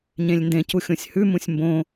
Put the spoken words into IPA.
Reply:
ɲ ẽ lʲ n d ẽ c u xʲ õ sʲ h ʉ m ũ sʲ m b õ

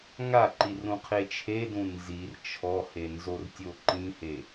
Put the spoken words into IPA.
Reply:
ŋ a ǃ i r ũ qʰ e t͡ʃʰ e d ũ n z i r t͡ʃʰ ɔ h e n z o r tʲ o ǃ ĩ h e

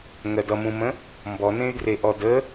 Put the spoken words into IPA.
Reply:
ŋ ɜ d ʌ m ũ m ə̃ | m b ɔ n ẽ y̯ d r e ʔ ɔ d ə

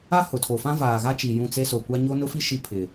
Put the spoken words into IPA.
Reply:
a˦ h ʊ˨ tʰ o˨ f ã˦ v aː˨ ɣ a˦ t͡ʃ i˨ j ũ˦˨ t͡s e˦ s o˨ kʷ a˦ ɲ o˦ n ʊ˦ f i˦ ʃ i˦ pʰ ɪ˨

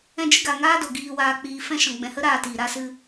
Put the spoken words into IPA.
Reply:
ɛ̃˧ d͡ʒ ɨ˧ ɡ a˨ ŋ aː˦ d o˨ ɡ iː˨ w aː˨ k͡p iː˨ f ɛ̃˧ ʃ ɔ̃˨ ɡ͡b ɛ̃˨ h ə˦ ɾ aː˧ t iː˨ ɾ a˧ s ɨ˧

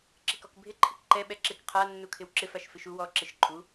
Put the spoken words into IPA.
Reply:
ǁ ɪ k ɔ k bʱ ɪ ǃʰ ɪ k ǃ ɛ ɓ ɛ ǁ ɪ k qʰ a nː u kʰ ɪ w ǁ ɪ f a ʃ f ɪ ʃ u w ɔ ǁ ɪ ʃ ǃʼ u

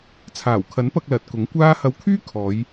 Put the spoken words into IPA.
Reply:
t͡sʰ aː˨˩ w kʰ ɐ˨˥ n p ɐ˧ k̚ l ɐ˨ t̚ k ʊ˨˥ ŋ kʷ aː˥ h ɐ˧ w kʰ yː˥ kʰ ɔː˨˧ j

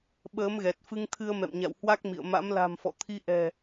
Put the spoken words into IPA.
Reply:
ɓ əː˨˦ m ɣ ɛ˨˩ t̚ f ɨ˧ ŋ t̪ʰ ɨ˧ ə̯ m ɛ̰˧˨ m ɲ a̰˧˨ w h w a˦˥ k̚ m ḭ˧˨ ə̯ m a̰˧˥ m l a̤˨˩ m f ɔ̰˧˨ t̪ʰ i˧ ʔ ɛ̤˨˩

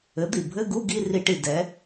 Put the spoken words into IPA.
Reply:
ɘ˩˥ d̪ i˩ bʱ ɘ˧˥˧ ɡ u˧˥˧ ɡ i˧˥˧ r i˧˩˧ ʈ i˩ d ɛ˩˥

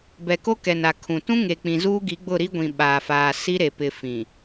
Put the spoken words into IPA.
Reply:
b ɛ˨ k o˦ k ɛ˨ n a˨ kʰ ũ˨ t ũ˦ ŋ e˨ k͡p ĩ˨ z uː˦ ɡ i˨˦ ɡ͡b ʊ˦˨ ɾ i˦ ɡʷ ĩ˨ ɓ aː˨ f aː˨ s i˦ ɾ e˨ p ɪ˨ f ĩ˨

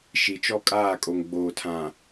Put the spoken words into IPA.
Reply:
ʃ i˨ t͡ʃ ɔ˦ kʼ aː˦˨ kʼ o˨ ŋ ɡ͡b oː˨ tʰ ã˨

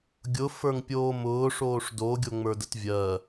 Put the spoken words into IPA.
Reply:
ɡʲ ʊ f ə˞ ŋ pʲ oː m ʊː ʂ oː ʂ d o ɡʲ o ŋ͡m ə˞ d ə t vʲ ɜ

